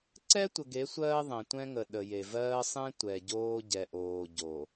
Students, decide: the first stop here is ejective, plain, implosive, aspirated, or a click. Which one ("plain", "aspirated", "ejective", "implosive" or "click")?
click